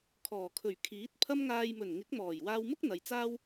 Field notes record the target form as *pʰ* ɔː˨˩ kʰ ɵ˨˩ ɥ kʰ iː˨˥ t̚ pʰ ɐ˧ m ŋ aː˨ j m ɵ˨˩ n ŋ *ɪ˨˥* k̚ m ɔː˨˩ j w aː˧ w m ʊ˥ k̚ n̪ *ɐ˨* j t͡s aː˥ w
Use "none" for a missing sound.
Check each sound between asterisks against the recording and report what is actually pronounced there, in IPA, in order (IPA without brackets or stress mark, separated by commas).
kʰ, ɪ˨˥, ɐ˨